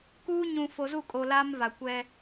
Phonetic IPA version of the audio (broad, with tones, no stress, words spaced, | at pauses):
kuː˦ ɲũ˨fo˨ zu˦˨ kʼo˨ laː˦mva˨ kʷɛ˦